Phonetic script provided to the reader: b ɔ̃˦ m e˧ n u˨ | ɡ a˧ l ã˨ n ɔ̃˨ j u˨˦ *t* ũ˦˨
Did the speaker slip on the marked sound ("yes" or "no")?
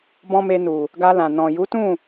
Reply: no